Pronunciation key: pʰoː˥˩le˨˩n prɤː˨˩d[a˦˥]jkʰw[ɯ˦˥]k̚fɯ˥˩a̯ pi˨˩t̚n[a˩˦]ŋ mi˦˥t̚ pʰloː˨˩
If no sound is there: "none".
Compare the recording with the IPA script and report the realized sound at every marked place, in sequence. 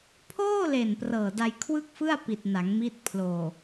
a˧, ɯ˥˩, a˩˦

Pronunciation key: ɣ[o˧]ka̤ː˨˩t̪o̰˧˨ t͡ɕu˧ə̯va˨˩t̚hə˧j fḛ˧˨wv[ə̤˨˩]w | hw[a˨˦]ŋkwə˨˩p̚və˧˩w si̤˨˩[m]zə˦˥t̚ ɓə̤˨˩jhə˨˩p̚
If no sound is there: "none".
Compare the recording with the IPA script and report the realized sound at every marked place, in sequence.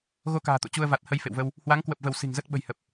o˧, ə˧, a˨˦, ŋ

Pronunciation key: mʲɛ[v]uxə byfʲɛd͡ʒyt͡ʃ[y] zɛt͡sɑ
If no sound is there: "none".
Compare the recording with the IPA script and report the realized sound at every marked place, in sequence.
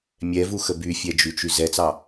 v, y

